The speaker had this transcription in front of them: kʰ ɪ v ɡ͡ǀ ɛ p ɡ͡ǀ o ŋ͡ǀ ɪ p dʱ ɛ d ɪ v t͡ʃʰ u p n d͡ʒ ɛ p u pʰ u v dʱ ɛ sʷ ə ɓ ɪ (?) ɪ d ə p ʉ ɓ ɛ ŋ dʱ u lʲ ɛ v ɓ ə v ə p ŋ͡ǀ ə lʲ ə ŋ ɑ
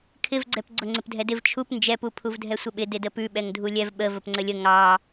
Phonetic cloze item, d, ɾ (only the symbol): d